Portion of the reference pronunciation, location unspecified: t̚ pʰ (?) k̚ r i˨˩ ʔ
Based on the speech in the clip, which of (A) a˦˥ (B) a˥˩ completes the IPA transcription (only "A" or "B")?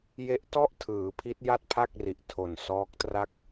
B